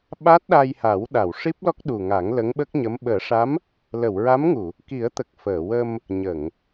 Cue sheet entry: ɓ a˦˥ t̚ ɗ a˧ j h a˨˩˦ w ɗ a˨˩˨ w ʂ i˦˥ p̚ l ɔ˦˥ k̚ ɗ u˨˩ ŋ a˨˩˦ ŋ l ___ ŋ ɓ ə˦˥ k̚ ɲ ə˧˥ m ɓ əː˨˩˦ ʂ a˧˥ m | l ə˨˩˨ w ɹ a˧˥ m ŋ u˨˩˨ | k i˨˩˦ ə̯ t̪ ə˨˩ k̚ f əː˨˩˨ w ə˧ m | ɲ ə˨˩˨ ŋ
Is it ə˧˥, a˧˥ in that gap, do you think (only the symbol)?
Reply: ə˧˥